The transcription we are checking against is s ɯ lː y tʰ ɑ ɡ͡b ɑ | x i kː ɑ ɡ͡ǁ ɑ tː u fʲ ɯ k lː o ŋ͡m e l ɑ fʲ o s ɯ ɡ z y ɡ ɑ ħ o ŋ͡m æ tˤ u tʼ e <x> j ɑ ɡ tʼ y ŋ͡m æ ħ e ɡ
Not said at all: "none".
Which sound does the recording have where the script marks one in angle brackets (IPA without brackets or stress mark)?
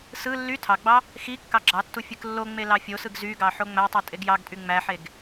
ɡ